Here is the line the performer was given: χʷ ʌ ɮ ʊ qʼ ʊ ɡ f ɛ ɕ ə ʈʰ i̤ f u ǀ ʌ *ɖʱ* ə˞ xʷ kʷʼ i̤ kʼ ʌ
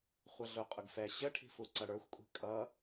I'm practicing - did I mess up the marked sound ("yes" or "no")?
yes